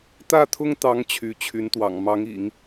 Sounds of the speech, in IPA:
t̪ ä˥˩ t̪ʰ ʊ˥ ŋ t̪ ɑ˧˥ ŋ t͡ɕʰ y˧˥ t͡ɕʰ y˧˥ n t̪ w ɑ̰˨˩ ŋ m ɑ˧˥ ŋ ḭ˨˩˦ ŋ

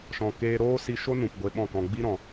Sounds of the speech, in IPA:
ʃ ɔ̃˨ k eː˧ ɾ oː˦ s i˧ ʃ o˦ n ũ˨ p ɡʷ e˧ ɓ ɔ̃˦˨ k ɔ̃˧ ɡ͡b i˦ ɾ ɔ̃˨

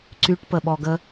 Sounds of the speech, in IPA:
ǀ y ʈ p ə ɓ ɔ ɡ ə

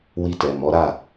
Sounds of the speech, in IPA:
w i˧ t ɛ˨ m ɔ˨˦ ɾ a˦˨

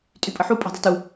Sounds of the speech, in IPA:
tʼ y pʼ ə ħ u pʼ e̤ dˤ e̤ t u

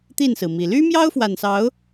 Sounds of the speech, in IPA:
t̪ i˥˨ n s ɹ̩˩ m i˨˩ l y˦ m j ɑ˦ ʊ̯ f w a˨˩ n s ɑ˨˦ ʊ̯

